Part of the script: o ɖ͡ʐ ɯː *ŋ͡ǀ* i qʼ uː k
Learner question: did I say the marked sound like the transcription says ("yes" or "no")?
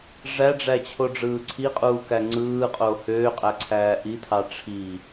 no